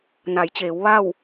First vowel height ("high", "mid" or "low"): low